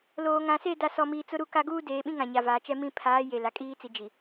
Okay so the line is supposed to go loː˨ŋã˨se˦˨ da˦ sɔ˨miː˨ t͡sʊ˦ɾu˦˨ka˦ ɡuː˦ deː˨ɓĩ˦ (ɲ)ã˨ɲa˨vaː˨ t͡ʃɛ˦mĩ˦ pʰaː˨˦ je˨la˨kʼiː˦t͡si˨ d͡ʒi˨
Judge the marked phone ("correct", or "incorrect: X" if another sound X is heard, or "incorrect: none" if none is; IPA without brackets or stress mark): incorrect: ŋ